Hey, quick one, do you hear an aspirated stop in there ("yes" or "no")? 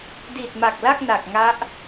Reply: no